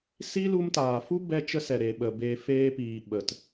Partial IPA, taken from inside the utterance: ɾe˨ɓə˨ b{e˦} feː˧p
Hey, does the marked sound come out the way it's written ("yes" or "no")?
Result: no